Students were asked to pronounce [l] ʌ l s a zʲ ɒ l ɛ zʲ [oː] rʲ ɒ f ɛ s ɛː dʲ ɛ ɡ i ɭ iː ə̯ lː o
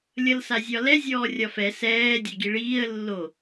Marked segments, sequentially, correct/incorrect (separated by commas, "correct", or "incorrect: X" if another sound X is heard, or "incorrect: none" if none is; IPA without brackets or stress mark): incorrect: lʲ, incorrect: ɔː